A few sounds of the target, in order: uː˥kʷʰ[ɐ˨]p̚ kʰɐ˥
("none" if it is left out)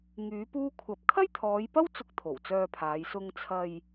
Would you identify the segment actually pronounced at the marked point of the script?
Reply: ɐ˨˥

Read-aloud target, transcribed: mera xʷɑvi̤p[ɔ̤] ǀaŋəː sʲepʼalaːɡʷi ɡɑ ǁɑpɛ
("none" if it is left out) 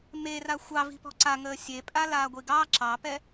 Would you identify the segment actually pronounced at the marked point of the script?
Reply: ɔ̤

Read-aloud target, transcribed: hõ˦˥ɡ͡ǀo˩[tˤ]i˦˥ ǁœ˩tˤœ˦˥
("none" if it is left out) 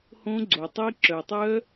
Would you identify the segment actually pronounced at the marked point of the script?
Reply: tˤ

